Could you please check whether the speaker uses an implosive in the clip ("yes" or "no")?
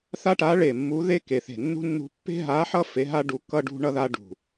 no